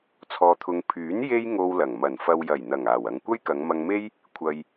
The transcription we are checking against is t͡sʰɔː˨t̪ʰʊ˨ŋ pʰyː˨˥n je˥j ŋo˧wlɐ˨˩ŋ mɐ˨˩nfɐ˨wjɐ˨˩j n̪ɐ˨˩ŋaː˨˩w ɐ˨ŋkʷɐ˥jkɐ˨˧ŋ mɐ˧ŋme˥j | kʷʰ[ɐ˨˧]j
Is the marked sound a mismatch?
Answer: yes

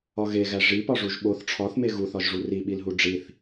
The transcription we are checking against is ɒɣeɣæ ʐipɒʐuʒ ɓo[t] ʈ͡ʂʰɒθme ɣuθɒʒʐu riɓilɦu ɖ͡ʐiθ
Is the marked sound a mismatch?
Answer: yes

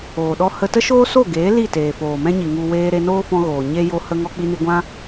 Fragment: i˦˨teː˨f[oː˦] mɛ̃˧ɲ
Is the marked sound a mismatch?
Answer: yes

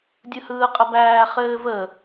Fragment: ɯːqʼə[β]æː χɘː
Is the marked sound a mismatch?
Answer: yes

